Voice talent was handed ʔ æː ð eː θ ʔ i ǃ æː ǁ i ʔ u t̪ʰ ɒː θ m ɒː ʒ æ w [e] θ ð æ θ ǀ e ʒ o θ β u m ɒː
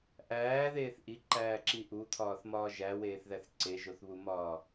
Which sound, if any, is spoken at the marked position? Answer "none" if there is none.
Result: eː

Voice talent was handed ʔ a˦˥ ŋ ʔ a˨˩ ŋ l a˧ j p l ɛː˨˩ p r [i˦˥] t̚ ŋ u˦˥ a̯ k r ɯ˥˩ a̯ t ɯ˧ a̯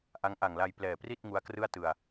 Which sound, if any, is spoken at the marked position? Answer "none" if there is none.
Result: i˥˩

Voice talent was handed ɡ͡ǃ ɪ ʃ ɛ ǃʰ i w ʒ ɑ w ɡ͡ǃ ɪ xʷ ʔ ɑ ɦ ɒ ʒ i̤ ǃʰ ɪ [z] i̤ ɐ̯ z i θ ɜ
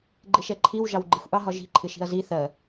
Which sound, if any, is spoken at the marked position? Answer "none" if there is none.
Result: ʃ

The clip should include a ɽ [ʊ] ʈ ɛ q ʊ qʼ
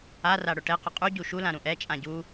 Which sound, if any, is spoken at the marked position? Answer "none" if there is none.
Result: ʊ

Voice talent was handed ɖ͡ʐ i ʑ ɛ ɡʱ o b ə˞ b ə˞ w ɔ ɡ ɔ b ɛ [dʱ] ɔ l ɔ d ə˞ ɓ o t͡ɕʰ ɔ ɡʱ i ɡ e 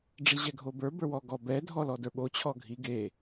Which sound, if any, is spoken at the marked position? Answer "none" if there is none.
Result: dʱ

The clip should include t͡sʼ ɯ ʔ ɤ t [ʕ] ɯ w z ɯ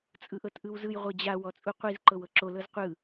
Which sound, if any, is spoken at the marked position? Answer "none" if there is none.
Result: ʔ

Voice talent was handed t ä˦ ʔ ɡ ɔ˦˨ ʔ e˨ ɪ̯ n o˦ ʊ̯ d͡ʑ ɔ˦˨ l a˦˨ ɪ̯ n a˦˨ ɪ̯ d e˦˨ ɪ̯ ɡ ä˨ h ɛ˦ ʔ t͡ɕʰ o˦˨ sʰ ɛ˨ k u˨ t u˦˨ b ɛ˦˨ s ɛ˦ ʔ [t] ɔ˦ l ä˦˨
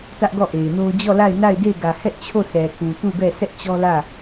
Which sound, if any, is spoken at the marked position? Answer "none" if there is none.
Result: t͡ɕ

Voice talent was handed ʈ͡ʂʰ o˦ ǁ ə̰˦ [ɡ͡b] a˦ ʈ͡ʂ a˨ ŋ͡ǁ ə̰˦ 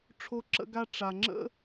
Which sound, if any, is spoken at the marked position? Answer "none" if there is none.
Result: ɡ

